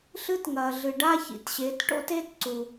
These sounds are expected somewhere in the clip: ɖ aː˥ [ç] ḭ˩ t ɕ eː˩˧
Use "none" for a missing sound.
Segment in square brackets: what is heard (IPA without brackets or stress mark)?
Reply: ç